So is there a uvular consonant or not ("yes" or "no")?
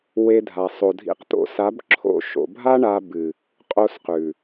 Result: yes